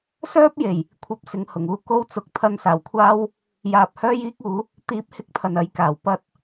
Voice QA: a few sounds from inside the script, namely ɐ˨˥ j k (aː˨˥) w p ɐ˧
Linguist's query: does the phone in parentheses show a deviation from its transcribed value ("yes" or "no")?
yes